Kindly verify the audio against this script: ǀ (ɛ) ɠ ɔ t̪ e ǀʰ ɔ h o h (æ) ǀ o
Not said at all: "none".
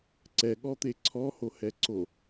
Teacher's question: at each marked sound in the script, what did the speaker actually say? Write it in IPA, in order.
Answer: ɛ, ɛ

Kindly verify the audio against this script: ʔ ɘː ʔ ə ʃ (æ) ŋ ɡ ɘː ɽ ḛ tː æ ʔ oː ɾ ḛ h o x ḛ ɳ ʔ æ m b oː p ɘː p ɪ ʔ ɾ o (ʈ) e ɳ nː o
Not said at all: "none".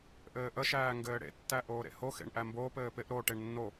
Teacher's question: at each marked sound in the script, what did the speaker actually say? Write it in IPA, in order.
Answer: æː, ʈ

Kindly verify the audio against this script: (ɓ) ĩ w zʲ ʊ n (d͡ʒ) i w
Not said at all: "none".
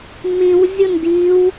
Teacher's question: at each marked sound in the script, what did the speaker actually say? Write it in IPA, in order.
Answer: m, d

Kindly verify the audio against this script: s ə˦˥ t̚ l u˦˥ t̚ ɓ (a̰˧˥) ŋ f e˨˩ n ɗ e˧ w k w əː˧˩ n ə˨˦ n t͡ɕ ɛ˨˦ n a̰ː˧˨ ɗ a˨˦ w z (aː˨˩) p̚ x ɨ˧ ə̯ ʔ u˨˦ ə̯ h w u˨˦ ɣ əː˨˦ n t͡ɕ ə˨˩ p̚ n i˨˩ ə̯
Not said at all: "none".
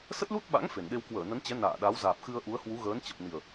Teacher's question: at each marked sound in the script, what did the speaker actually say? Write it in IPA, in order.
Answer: a̰˧˥, aː˨˩

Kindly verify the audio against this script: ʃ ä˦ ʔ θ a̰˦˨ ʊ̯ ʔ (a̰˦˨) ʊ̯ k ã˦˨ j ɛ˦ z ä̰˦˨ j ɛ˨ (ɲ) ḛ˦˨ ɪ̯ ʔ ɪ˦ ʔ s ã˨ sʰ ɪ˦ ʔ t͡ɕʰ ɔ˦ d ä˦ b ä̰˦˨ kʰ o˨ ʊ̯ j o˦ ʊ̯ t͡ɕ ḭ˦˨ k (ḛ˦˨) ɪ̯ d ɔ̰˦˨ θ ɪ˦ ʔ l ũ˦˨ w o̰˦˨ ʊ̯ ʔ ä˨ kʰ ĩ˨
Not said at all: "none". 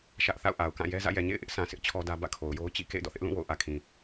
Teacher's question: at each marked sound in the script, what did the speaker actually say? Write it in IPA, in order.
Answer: a˨, ɲ, ḛ˦˨

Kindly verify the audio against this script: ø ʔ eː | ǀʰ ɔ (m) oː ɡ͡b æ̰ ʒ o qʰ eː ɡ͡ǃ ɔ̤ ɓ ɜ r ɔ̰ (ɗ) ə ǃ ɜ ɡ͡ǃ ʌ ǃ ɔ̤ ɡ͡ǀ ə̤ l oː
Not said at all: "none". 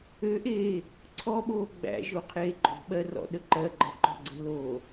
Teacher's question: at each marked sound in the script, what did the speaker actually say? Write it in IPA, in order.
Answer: ɓ, ɗ

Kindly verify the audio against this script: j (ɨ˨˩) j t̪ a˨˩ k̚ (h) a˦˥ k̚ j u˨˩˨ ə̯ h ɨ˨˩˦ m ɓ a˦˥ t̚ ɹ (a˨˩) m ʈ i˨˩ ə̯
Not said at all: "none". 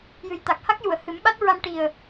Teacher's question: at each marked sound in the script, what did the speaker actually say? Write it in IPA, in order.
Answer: ɨ˨˩, h, a˧

